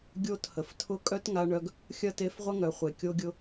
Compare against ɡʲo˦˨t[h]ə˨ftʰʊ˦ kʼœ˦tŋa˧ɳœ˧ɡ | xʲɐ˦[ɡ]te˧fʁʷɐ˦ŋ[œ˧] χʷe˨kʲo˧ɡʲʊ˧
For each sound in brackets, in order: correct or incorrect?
correct, incorrect: none, incorrect: œ˨

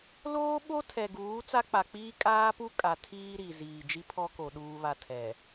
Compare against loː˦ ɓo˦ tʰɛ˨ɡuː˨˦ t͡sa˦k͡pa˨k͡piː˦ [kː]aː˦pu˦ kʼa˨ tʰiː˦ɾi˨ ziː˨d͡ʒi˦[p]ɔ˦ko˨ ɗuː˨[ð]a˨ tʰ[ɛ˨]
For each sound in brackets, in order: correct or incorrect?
incorrect: kʼ, incorrect: pʰ, incorrect: β, correct

